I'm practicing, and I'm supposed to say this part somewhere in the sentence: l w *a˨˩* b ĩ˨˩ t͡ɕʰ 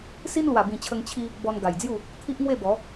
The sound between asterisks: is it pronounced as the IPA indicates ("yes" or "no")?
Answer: yes